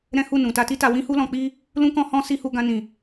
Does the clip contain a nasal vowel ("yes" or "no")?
yes